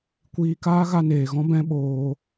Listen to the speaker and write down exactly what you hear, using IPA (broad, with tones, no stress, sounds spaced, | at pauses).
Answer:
kʷ iː˧ k aː˦ ɣ a˧ n eː˨ ɣ ɔ̃˦ b ɛ̃˦ ɓ oː˧